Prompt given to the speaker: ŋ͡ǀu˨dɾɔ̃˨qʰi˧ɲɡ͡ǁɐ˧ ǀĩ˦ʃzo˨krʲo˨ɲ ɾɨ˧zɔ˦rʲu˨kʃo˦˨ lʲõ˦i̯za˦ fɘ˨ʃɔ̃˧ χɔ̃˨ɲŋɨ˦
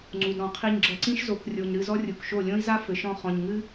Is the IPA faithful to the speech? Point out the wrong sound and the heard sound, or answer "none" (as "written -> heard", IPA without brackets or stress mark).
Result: none